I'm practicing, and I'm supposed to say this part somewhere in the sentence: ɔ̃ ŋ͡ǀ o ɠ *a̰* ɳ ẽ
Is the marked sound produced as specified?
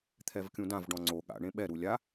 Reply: yes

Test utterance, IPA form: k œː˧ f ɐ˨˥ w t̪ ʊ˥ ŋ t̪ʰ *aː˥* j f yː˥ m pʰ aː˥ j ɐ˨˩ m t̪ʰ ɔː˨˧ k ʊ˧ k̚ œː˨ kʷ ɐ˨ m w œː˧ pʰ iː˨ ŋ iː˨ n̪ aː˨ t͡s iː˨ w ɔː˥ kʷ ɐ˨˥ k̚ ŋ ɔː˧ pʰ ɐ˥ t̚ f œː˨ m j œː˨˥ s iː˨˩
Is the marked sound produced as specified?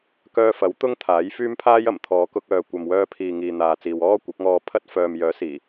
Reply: no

